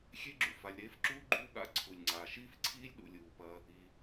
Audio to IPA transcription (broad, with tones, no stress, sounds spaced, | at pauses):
xʲ e˥ ɡ͡ǁ ṵ˩ f a˨ lʲ ɾ eː˦ f ǁ uː˥ ɡ͡ǃ uː˦ ɠ a̰˦ ǀʰ u˩ lʲ ŋ͡ǀ aː˩ ʃ iː˥ f ǀʰ iː˥ lʲ ɗ ṵ˩ lʲ uː˩ p ɐ˨ | i˩